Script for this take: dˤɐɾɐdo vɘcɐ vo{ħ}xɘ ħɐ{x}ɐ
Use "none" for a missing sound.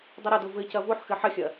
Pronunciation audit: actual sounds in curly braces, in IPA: ħ, xʲ

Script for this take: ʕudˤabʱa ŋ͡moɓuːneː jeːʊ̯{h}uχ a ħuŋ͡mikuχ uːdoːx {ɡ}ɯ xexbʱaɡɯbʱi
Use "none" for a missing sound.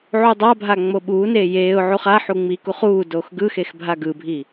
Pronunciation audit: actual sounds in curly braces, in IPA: ʕ, ɡ

